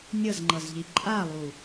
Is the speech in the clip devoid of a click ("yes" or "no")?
no